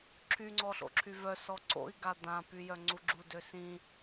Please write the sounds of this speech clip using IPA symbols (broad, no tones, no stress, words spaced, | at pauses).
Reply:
ǁʰyŋ͡ǀɔɬo̰ǁʰy vœsɔ ǀo̰i̯ɡa d̪ãpyjœŋ͡ǀu ɡ͡ǁudø sĩ